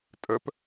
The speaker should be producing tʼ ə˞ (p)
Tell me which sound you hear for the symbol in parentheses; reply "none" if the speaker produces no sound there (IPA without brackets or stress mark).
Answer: p